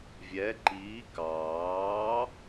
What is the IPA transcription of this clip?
vʲ ɛ ǃ iː k ɑː

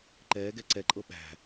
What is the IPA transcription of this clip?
ǃ ɛː ɡ ɛ ǀ ɛ ǃʼ ɤ ɓ æ̤

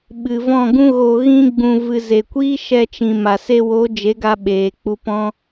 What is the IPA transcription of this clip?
ɓ ɨ˨ v ɔ̃˦˨ ɡ ũ˦ ɣ o˧ ɣ ĩ˦ ɡ͡b ũ˧ v ɨ˨ z e˨ kʷ iː˦ ʃ ɛ˧ t͡ʃ ĩ˨ m a˨ s e˧ w o˨˦ d͡ʒ e˨˦ ɡ a˧ ɓ eː˨ k͡p u˧ p ɔ̃˦

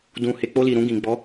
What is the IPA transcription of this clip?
d ũ˨ h e˨ k͡p o˧ l i˨ ɾ ũ˧ ɡ ĩ˨ ɡ͡b ɔ˨˦

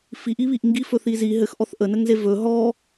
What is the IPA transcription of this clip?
f i ʔ i β i ʔ ŋ ɡ i f ɵ θ i z i ɦ ɘ x ʔ ɔ θ ʔ ə n ə ŋ z e v ɵ ɦ ɔ

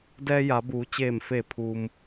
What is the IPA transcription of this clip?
d ɛː˧ j a˩˧ b uː˩˧ t͡ɕ eː˧˩ m f eː˧˩ pʰ uː˩ m

